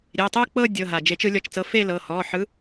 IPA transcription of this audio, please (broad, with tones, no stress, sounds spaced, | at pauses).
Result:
ɾʲ e˩˧˩ tˤ ɯ˥˧ k͡p ɤ˥˧ dʲ ɤ˩˧˩ ɦ a˩ d͡ʒ e˨˩˦ t͡ʃ ɯ˨˩˦ lʲ ɔ˩˧˩ t͡ʃ t͡s ɤ˨˦ f e˥˧ l ɤ˩˧˩ h ɔ˩˧˩ ħ ɯ˨˦